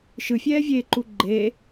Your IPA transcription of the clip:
ʃɯfʲɛːvʲeːǃu ɡ͡ǃeː

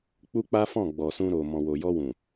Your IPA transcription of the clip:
k͡pu˦k͡pa˦fɔ̃˦˨ ɡ͡bɔ˨sũ˧ɾo˨ mɔ̃˨wo˨jɔ˧wũ˨

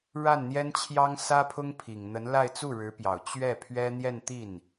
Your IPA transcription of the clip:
ɻa˥˩nn̪jɛ˥n t͡ɕʰjɑ˥ŋsä˥pʰʊ˥ŋpʰi˨˩ŋ n̪ə˧˥nla˥˧ɪ̯ t͡su˥˩ɻɻ̩˧˥pjɑ˨˩ʊ̯ t͡ɕɥɛ˥˩pʰɥɛ˥ n̪jɛ˥˧nt̪i˥˩n

